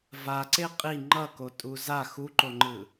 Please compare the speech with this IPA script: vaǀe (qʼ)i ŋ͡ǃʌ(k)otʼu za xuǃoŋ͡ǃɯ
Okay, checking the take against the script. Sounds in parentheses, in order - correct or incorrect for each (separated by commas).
correct, correct